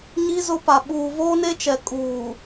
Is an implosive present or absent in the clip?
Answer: present